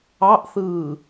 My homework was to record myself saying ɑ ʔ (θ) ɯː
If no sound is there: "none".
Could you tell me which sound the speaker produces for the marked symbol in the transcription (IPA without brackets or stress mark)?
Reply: θ